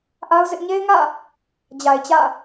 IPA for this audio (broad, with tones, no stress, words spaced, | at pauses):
ʔa˦ʊ̯ zɪ˦ʔ ɲe˦ɪ̯ŋä̰˦˨ | d͡ʑa˨ɪ̯t͡ɕä̰˦˨